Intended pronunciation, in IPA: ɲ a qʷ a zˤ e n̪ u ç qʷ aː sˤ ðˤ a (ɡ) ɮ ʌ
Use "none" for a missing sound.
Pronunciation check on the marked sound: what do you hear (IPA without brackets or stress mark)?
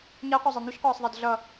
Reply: d